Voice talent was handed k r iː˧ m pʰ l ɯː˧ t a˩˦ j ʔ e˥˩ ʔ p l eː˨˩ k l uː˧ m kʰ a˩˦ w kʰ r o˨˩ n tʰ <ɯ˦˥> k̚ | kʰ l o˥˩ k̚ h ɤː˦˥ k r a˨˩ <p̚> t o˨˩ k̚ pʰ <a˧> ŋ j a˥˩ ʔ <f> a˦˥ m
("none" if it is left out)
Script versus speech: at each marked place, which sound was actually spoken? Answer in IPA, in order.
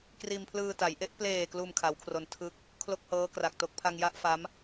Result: ɯ˦˥, k̚, a˧, f

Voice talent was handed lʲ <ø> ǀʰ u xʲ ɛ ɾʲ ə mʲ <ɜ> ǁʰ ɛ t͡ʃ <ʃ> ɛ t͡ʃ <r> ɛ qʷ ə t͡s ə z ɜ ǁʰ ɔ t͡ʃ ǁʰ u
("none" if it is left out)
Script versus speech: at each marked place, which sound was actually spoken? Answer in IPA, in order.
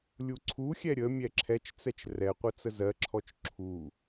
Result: u, ɛ, t͡s, r

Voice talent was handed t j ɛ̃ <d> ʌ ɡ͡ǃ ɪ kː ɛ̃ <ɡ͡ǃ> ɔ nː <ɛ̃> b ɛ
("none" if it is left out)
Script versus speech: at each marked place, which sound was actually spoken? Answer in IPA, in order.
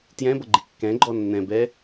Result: b, ɡ͡ǃ, ɛ̃

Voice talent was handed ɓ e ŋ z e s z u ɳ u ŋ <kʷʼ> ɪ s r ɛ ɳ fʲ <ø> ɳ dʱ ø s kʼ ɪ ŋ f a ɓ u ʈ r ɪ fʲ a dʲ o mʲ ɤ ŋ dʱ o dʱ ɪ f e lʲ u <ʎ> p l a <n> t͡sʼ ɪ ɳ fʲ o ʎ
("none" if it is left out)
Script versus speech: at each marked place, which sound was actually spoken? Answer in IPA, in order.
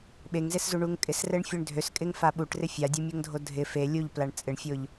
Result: kʼ, ø, ʎ, ɳ

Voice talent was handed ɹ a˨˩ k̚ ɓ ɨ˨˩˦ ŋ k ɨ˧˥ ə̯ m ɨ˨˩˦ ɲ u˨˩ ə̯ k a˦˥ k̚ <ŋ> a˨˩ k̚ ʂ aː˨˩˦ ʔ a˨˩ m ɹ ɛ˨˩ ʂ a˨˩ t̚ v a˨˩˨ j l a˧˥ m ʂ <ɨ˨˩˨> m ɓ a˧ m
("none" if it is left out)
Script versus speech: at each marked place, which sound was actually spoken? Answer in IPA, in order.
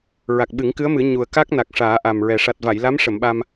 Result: n, ə˨˩˨

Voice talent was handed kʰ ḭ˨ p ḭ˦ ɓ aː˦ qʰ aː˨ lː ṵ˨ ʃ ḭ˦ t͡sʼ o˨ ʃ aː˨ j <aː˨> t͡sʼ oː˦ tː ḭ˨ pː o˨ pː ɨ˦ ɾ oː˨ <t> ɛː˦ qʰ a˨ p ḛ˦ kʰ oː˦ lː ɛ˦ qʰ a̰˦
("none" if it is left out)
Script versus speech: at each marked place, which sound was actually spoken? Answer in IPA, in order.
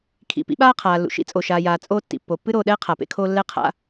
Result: aː˨, ɗ

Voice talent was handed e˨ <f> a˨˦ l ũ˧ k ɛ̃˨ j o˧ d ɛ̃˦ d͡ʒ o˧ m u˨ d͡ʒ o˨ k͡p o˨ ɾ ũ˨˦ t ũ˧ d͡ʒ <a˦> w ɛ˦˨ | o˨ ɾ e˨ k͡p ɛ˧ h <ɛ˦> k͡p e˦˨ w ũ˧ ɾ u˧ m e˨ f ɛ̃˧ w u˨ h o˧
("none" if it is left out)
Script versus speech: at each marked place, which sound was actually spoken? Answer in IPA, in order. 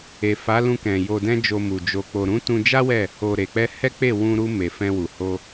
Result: f, a˦, ɛ˦

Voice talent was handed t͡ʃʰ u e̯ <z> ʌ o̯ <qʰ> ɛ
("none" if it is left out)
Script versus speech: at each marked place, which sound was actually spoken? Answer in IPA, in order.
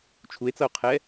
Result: t͡s, qʰ

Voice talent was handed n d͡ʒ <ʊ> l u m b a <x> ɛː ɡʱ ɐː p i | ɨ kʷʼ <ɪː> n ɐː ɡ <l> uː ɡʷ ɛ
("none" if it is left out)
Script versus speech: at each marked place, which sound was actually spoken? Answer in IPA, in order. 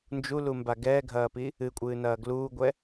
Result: u, ɡ, ɨː, l

